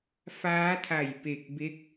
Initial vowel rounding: unrounded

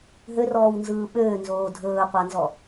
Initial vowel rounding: rounded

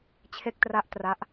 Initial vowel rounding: unrounded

